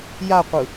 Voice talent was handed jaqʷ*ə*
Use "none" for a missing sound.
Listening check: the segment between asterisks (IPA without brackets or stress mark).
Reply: ɯ